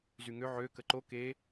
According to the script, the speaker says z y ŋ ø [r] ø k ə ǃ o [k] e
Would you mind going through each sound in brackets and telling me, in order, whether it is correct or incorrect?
incorrect, correct

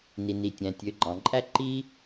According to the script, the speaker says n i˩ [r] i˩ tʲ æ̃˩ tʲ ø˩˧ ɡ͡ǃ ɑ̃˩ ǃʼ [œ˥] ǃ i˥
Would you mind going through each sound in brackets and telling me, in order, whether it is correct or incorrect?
incorrect, incorrect

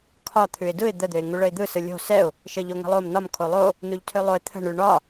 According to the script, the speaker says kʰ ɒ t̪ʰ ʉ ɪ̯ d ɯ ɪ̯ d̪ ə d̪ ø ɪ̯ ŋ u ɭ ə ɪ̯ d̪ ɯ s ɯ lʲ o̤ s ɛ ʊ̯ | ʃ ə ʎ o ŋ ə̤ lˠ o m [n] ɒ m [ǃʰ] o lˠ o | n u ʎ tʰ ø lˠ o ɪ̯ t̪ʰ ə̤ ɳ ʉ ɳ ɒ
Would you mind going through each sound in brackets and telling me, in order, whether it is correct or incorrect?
correct, incorrect

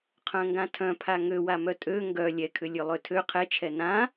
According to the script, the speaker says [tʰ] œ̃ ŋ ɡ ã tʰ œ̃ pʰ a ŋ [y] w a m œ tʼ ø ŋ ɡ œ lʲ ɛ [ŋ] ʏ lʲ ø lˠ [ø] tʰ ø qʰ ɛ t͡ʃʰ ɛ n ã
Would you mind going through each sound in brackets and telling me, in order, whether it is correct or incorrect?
incorrect, incorrect, incorrect, correct

